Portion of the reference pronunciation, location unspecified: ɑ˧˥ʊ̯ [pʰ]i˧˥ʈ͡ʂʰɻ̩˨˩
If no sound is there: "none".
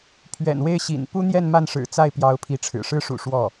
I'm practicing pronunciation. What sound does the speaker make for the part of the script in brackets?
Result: pʰ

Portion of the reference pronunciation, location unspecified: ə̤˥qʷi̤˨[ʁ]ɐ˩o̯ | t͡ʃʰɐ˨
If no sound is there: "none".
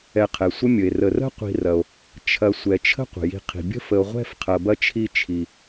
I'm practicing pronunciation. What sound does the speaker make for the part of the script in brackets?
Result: r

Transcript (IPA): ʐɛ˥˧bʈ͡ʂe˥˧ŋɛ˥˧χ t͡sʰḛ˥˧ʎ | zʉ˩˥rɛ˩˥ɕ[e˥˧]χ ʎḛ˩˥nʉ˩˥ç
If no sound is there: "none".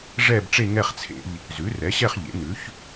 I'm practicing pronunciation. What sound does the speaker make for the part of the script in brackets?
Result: ɛ˥˧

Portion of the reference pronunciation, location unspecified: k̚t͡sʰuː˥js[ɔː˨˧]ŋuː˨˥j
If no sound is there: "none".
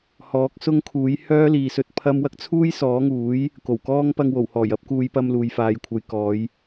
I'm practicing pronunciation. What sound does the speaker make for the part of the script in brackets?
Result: ɔː˨˥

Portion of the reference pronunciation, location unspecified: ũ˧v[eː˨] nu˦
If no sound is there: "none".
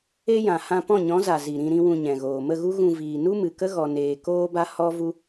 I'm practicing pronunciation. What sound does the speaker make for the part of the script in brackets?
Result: iː˨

